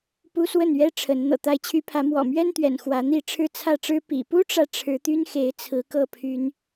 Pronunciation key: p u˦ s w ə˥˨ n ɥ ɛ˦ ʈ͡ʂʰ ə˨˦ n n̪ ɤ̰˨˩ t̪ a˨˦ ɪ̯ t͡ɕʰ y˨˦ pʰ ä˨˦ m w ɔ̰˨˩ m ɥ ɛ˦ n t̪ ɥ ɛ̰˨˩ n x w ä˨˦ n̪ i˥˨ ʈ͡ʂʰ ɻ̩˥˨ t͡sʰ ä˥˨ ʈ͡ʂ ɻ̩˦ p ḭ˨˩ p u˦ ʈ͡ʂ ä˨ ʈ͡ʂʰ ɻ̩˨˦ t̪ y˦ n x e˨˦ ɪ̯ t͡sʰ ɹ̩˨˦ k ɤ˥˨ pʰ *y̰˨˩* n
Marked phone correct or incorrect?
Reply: incorrect